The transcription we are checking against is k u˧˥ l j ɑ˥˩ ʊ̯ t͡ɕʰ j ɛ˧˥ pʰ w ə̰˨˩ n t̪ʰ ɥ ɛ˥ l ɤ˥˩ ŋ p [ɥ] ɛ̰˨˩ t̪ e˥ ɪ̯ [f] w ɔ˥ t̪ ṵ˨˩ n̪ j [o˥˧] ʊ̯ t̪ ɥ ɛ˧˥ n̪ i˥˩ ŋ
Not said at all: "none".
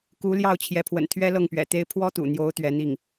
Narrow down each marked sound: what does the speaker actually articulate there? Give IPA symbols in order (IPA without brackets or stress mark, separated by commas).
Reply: ɥ, pʰ, o˧˥